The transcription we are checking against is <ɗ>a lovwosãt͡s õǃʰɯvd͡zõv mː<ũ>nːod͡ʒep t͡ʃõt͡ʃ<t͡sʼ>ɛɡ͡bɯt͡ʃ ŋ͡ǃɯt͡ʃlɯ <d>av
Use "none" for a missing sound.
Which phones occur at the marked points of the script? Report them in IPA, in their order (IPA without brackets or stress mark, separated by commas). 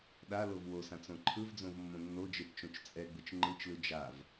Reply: ɗ, õ, t͡sʼ, d͡ʒ